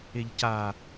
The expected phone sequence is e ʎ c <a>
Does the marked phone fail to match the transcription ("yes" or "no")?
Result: no